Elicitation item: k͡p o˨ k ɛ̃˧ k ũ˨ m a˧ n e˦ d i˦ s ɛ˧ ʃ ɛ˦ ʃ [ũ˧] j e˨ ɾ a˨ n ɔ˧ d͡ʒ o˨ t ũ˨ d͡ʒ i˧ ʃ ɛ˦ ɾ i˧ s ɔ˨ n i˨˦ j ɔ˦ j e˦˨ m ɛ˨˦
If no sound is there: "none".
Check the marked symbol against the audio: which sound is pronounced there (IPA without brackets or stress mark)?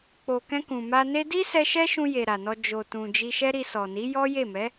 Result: ũ˧